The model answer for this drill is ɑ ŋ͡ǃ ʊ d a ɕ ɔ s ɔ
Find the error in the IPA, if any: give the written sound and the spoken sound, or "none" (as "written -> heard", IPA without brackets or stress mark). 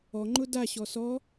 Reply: ɑ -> ɔ